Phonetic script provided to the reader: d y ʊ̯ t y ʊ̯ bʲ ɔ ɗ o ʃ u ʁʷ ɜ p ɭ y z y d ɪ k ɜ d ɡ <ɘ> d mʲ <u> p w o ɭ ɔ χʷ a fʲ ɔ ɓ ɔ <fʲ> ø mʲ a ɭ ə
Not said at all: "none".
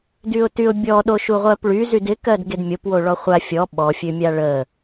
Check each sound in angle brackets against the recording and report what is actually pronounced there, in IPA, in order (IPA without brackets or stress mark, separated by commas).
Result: e, o, fʲ